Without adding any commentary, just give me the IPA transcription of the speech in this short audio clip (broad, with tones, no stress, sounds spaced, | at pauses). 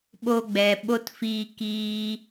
ɓ o˧ ɡ͡b ɛ˨ ɓ o˦ t f iː˧ k iː˧